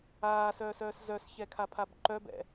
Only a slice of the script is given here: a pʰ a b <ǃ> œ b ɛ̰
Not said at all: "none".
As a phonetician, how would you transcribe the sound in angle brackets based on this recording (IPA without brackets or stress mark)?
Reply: ǃ